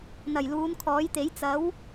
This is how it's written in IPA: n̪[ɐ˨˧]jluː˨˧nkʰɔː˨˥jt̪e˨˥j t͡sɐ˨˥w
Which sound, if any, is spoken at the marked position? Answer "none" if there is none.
ɐ˨˩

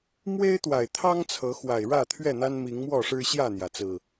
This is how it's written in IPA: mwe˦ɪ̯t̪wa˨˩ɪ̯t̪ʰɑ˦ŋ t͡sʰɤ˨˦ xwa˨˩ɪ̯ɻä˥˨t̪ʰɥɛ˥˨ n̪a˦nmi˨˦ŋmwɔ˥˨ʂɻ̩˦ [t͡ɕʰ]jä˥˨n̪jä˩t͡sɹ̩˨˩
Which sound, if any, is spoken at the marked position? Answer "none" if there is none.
ɕ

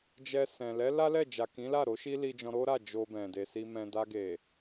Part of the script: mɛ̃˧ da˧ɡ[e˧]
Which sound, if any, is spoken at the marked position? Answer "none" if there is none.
e˨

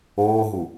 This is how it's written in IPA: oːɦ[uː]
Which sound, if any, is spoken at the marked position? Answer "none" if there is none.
u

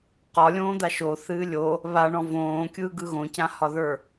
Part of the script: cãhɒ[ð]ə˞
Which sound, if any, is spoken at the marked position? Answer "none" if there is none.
ð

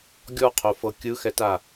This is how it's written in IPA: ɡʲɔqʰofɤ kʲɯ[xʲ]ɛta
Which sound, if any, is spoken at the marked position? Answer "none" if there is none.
x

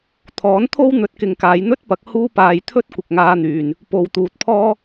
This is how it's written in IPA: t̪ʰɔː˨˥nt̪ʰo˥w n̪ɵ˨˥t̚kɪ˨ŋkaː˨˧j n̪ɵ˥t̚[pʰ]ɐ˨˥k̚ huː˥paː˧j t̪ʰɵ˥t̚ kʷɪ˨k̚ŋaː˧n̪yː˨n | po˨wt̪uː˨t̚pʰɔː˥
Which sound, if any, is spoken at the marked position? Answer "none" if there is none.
p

